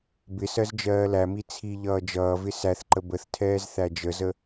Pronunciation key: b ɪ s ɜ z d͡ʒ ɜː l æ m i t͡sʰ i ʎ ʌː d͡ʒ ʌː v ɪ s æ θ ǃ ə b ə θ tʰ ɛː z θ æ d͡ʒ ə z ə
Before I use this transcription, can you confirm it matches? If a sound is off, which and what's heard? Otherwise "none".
none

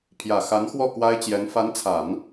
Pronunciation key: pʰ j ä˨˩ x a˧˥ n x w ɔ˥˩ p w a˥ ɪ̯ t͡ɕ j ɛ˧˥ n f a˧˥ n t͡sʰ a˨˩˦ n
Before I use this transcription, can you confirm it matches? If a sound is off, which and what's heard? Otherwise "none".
p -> k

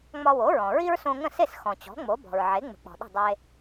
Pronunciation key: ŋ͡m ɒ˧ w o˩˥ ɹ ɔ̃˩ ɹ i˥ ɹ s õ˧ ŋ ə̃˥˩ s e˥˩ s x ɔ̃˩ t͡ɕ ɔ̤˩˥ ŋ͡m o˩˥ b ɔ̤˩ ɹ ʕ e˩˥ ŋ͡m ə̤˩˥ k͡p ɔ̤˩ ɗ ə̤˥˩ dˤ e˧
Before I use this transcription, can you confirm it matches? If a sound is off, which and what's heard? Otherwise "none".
none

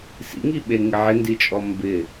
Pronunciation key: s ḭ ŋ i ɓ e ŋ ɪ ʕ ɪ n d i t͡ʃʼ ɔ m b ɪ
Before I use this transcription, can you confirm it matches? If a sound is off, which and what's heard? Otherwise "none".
none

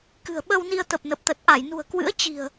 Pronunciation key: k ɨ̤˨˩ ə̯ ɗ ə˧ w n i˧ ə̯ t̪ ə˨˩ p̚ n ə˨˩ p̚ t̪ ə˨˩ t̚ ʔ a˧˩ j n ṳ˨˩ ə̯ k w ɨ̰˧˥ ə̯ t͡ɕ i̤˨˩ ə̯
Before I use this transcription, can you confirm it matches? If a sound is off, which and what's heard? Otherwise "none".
ɗ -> ɓ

